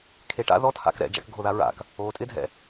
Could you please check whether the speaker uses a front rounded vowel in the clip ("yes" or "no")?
no